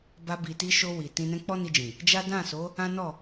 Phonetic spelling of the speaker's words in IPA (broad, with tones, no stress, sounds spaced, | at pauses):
b a˧ b i˨ t i˧ ʃ o˧ w i˨ t ĩ˧ n ɛ̃˦ k͡p ɔ˦ n i˧ d͡ʒ ĩ˨ | d͡ʒ a˦ d ã˦˨ s o˨˦ | ã˦ n ɔ˦˨